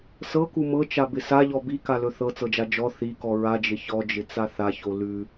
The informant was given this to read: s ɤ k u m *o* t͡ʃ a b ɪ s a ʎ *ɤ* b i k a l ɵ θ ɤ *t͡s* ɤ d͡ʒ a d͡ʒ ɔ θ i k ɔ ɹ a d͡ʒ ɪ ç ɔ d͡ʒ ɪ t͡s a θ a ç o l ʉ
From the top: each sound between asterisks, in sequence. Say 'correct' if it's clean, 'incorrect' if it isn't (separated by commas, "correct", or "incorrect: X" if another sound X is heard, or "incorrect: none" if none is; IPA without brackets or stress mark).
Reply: incorrect: ɤ, incorrect: ɔ, correct